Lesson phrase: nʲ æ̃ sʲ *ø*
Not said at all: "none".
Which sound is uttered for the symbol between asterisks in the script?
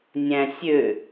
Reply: ø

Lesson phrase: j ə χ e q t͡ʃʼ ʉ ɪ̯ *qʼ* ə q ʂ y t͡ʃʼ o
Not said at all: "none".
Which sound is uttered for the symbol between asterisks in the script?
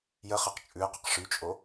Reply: q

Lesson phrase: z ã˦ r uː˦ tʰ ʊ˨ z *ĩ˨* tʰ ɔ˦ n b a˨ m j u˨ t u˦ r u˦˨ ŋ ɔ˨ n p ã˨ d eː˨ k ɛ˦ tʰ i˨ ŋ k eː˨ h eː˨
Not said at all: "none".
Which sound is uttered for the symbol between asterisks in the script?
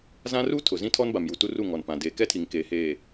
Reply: ĩ˦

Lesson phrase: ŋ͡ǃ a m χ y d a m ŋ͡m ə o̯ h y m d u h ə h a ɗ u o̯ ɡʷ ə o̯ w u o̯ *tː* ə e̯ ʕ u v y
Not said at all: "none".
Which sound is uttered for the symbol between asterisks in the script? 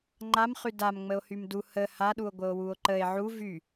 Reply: ǃ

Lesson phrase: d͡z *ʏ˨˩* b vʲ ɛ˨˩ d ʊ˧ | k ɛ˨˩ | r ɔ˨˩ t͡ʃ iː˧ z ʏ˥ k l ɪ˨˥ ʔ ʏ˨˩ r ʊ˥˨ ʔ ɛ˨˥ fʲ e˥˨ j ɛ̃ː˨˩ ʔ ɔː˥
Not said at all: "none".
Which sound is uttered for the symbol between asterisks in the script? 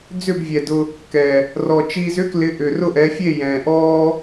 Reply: ʏ˥˨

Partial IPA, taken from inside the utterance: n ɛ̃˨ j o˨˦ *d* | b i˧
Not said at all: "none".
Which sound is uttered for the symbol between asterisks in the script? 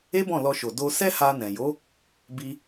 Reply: none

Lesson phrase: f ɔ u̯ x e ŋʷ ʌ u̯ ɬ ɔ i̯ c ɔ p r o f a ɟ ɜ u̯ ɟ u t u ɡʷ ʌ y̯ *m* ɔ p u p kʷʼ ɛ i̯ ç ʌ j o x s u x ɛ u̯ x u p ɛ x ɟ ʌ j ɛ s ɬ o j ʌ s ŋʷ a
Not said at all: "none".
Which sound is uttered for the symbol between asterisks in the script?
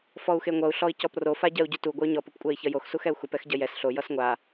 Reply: ɲ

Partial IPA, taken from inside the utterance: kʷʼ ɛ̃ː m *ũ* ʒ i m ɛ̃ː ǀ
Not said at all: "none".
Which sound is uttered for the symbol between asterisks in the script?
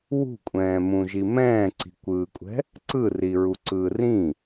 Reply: ũ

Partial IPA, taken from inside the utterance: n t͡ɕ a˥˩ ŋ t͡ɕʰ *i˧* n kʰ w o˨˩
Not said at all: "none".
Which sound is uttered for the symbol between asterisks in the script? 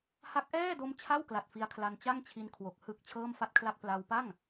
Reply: i˧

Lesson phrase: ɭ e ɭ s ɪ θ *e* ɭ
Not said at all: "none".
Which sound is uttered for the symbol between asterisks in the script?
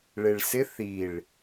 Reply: i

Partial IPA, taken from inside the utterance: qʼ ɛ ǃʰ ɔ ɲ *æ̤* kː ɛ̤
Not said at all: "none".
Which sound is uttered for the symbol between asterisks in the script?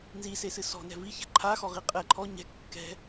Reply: ɛ̤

